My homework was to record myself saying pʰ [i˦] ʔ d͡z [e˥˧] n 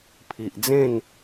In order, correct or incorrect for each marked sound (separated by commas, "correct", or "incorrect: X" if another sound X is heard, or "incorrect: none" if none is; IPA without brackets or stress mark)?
incorrect: i˨, incorrect: ẽ˥˧